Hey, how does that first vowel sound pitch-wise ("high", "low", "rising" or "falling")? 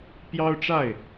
high